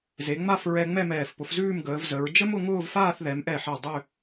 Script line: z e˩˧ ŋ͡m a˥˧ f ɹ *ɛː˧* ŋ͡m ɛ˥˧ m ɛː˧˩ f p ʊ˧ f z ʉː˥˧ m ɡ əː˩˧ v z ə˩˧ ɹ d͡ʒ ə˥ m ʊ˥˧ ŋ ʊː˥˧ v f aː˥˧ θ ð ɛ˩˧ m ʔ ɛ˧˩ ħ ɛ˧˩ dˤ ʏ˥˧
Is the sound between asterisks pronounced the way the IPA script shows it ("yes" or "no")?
no